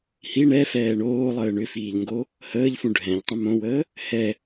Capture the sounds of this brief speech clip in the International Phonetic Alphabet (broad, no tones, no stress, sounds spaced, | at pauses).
h i ɳ ɛ f ɛː ɳ oː lˠ əː ɳ ʏ f iː ʎ ŋ ɡ o | h əː ʎ f ũ ɖʱ ɛ̃ ʎ tˤ ə̃ m õ w əː | h ɛ